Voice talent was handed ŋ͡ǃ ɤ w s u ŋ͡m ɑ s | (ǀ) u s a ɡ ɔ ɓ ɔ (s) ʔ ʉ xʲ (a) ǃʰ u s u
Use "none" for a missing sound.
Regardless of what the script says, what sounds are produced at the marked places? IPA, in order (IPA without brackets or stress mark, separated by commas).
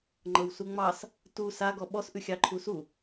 t, s, ɑ